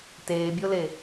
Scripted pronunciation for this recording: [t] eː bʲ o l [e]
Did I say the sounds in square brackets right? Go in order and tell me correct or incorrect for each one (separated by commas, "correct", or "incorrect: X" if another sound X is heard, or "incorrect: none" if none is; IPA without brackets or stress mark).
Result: correct, correct